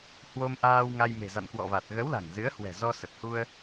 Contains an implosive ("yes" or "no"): no